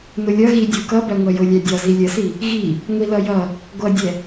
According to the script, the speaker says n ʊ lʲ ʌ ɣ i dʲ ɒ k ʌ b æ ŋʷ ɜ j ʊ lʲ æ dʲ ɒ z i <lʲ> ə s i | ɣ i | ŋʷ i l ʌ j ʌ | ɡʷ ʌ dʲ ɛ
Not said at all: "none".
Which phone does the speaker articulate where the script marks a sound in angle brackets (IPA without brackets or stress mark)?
lʲ